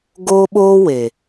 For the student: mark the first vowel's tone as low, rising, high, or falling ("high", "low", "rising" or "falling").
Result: high